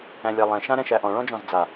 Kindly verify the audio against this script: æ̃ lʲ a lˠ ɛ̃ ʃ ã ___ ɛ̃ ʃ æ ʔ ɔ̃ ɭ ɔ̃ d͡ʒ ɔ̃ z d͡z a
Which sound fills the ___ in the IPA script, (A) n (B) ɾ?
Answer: B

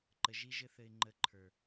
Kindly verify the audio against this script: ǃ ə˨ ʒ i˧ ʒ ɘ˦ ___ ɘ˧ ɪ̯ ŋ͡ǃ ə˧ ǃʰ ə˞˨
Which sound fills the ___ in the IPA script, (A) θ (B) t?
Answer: A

